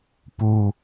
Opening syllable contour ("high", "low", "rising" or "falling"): low